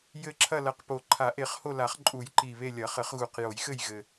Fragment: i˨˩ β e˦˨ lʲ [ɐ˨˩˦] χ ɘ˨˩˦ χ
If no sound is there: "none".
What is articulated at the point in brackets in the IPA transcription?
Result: ɐ˨˩˦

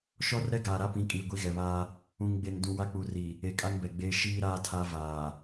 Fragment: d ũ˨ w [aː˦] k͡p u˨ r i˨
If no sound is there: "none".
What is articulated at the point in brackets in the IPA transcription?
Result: a˦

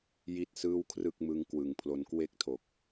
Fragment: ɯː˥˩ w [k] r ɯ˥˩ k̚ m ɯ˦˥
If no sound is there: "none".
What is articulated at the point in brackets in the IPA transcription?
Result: kʰ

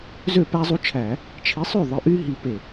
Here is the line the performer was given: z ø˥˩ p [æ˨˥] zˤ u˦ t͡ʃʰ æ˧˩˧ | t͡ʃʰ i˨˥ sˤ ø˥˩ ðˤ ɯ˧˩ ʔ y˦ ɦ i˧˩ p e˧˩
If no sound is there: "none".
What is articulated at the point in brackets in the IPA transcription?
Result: æ˦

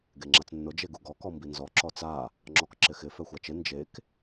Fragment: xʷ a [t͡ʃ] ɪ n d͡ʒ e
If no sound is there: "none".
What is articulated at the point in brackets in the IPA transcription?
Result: t͡ʃ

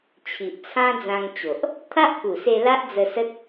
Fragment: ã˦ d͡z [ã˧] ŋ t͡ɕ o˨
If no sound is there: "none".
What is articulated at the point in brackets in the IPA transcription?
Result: ã˧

